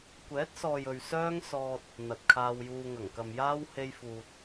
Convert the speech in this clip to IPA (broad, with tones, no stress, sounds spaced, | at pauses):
kʷ ɛː˨˥ t̚ s ɔː˨ j ɵ˨ ɥ s œː˥ ŋ s ɔː˧ t̚ | n̪ ɐ˨ t̚ kʰ aː˧ w j uː˧ ŋ ɐ˨˩ ŋ k ɐ˨ m j aː˥ w h e˥ j f uː˧ t̚